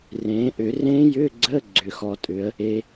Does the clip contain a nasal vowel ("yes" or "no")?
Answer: yes